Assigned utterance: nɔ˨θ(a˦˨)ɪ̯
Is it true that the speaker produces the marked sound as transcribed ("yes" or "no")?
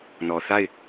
yes